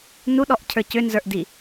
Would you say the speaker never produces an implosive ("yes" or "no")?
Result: no